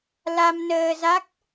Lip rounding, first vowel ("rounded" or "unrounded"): unrounded